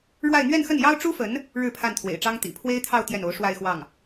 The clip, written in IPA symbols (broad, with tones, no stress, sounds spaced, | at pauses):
ɻ w a˥˧ ɪ̯ n̪ ɥ ɛ˥˧ n x ə˥˩ n j ɑ˥ ʊ̯ ʈ͡ʂ u˥ f ə˧˥ n | ɻ ɻ̩˥˧ pʰ a˥˩ n t̪ʰ w ḛ˨˩ ɪ̯ ʈ͡ʂ ɑ˥ ŋ t̪ ḭ˨˩ pʰ w e˥ ɪ̯ t̪ʰ ɑ˥˧ ʊ̯ t̪ j ɛ˥˩ n o˧˥ ʊ̯ ʂ w a˥˧ ɪ̯ x w ɑ˥˩ ŋ